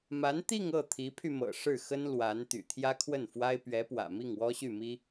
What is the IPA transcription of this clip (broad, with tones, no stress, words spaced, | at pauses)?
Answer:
ma˧˥nt̪i˥˧ŋ ɤ˥˩ t̪ʰi˧˥pʰy˧mɤ̰˨˩ ʂɻ̩˥˩xə˥n lwa˧˥n t̪y̰˨˩t̪ʰjä˥kʰwə˥˩nfwa˥ɪ̯ pɥɛ˧˥pwä̰˨˩ mi˥˩ŋwɔ˥ɕy˥˩mi˥